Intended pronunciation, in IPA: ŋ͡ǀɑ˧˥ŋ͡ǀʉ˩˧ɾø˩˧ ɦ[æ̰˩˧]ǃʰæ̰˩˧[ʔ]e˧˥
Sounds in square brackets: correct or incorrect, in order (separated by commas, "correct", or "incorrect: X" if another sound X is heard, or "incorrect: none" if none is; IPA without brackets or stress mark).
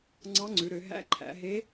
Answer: incorrect: æ̰˧˥, incorrect: ɦ